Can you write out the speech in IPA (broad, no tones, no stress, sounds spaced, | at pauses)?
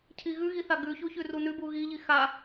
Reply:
cʰ i ɣ ʉ ɣ i θ a ɡ ʉ ç u ç ʉ r u n ʉ b u ɣ i ʎ i x a